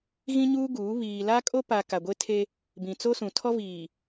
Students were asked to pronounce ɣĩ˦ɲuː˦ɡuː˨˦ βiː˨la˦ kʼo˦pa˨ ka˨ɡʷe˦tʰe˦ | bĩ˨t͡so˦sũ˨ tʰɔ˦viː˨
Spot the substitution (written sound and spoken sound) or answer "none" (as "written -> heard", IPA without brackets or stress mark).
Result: none